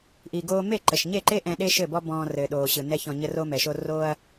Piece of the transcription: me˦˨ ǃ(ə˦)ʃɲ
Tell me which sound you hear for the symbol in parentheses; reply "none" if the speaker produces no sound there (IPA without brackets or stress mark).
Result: ə˨